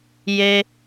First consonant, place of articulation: palatal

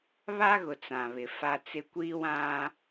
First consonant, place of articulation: labial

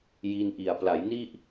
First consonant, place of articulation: palatal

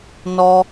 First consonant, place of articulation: alveolar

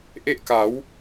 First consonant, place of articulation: glottal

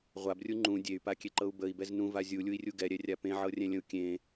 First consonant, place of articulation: uvular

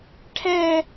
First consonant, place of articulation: retroflex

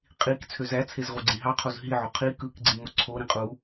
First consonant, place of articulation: uvular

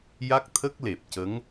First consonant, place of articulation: palatal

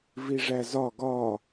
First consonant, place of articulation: labial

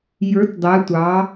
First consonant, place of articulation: palatal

